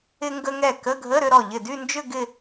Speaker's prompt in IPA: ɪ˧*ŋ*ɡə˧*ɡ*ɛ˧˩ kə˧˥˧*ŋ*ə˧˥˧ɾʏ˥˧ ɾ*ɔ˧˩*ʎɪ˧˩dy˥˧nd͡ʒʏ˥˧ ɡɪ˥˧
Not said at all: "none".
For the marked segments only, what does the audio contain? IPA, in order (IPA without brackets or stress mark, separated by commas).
ŋ, ŋ, ɡʱ, ɔ˧˩